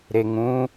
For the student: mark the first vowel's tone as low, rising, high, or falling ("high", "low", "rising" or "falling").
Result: low